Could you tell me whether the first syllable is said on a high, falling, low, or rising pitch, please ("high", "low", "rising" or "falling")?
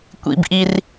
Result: low